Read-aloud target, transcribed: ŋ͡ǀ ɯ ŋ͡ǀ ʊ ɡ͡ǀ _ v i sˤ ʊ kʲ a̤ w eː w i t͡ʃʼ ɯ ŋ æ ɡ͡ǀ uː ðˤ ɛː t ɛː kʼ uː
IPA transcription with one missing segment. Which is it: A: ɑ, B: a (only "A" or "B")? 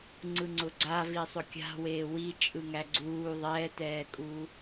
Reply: B